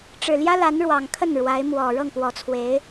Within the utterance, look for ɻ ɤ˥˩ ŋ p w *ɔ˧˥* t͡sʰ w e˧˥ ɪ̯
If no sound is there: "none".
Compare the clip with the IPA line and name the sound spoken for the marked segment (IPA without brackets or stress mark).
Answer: ɔ˧˥